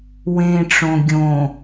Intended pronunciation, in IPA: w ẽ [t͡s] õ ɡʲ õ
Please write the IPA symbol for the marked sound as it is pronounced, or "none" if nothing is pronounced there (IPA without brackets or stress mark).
ʈ͡ʂ